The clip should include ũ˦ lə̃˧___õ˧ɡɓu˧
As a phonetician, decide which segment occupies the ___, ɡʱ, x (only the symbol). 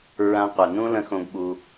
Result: x